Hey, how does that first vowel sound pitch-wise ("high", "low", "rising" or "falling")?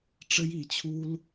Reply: high